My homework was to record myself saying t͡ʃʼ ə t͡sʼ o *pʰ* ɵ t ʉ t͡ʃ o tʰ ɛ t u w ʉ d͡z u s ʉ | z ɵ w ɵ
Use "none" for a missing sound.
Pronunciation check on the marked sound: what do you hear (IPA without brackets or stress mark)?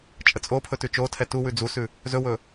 pʰ